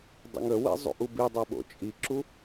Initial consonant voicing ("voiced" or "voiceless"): voiced